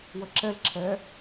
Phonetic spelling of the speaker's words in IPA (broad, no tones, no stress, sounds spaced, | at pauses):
w ə ǁ ɛ l ǁʰ ɛ